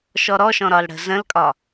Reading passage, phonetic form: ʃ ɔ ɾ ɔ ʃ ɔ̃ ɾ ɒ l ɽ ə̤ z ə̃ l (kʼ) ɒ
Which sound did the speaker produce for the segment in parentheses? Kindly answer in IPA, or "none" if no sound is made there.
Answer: kʼ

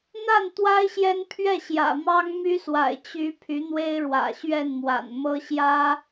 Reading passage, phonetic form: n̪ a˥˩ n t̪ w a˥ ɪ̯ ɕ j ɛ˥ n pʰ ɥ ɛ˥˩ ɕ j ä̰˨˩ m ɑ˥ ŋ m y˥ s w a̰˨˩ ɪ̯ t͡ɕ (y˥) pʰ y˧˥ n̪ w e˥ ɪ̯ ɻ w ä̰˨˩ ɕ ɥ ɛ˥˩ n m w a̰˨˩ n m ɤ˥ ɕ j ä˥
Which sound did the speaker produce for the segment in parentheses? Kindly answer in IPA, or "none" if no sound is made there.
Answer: y˧˥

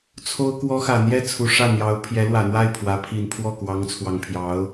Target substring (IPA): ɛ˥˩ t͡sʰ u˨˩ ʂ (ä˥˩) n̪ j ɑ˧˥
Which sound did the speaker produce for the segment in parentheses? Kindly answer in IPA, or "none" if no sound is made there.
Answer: ä˥˩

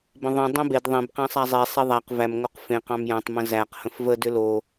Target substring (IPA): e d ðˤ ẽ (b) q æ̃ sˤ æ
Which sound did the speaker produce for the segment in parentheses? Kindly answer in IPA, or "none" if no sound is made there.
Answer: b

